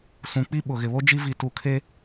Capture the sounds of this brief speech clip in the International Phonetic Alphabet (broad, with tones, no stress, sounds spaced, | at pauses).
s ũ˨ k͡p i˦ ɓ ʊ˨ ɣ ɪ˨ β o˦ d͡ʒ i˦ v i˨ t u˨ kʰ e˦